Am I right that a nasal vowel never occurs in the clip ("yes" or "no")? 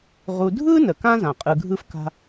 no